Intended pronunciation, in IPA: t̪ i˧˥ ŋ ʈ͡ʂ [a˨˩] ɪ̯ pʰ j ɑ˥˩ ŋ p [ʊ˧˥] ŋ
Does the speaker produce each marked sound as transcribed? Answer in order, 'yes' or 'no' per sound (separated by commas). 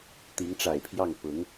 yes, yes